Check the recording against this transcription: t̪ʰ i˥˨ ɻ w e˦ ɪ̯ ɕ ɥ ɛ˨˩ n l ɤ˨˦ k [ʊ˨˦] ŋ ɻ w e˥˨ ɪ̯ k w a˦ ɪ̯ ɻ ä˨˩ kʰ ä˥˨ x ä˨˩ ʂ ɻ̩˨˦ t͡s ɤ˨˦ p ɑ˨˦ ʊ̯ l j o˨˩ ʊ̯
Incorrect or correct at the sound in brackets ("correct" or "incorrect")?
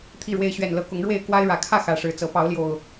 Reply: correct